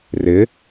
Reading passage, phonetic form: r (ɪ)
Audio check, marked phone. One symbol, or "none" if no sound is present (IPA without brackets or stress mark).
ɪ